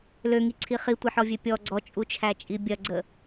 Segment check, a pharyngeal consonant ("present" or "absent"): present